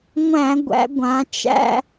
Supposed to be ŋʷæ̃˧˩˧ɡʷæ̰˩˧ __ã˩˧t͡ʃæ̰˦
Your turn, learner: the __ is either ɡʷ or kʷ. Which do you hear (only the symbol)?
ɡʷ